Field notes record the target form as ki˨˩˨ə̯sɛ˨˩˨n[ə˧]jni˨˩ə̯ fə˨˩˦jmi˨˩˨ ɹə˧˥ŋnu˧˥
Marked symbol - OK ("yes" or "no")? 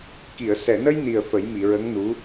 yes